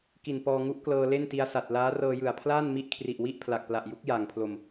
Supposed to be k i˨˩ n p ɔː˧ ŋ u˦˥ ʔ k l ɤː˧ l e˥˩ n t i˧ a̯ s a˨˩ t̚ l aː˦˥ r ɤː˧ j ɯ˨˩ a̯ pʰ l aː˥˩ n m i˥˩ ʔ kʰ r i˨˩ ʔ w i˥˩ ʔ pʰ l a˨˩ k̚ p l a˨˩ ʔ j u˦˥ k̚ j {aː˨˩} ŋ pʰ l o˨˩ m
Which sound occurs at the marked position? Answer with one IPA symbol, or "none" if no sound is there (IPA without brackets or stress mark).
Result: aː˨˩